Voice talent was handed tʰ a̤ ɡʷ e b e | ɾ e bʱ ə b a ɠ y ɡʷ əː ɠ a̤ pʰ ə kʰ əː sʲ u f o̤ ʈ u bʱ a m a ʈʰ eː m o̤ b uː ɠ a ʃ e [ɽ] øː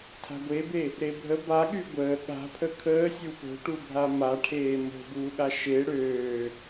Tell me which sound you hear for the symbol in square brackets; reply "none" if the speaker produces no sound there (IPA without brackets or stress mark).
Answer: ɽ